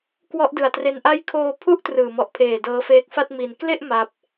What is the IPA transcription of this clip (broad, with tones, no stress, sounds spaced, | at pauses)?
k w ɔ˦˥ ʔ d ɯ˨˩ a̯ t r e˧ n ʔ a˦˥ j kʰ oː˧ pʰ u˥˩ ʔ t r ɯː˨˩ m ɔ˨˩ ʔ pʰ eː˨˩ d ɤː˦˥ f eː˦˥ k̚ f a˥˩ t̚ m i˧ n k l e˥˩ ʔ m a˦˥ p̚